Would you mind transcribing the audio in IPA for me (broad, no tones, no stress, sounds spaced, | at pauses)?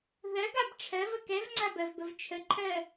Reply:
ð ɜ ɡ a b ʈ͡ʂʰ ɜ v ə k ɛ v ŋ͡ǀ a b ɜ v b ə v t͡ʃʰ ə ǃʰ ɜ